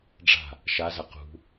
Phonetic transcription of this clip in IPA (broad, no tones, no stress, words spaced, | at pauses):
ɖ͡ʐa̤ | ʃazɐ qṳ